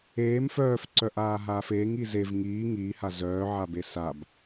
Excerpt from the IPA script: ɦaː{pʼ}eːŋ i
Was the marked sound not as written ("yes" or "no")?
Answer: yes